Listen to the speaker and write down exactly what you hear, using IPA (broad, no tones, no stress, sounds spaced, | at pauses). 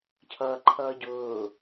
cʰ ʌː ǃʰ ʌː ɟ ʊː